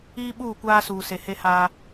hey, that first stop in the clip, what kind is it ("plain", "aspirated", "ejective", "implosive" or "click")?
implosive